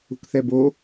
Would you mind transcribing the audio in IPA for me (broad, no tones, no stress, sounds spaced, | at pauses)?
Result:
ṳ k θ ɛ b o